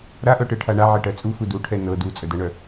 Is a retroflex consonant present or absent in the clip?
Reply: present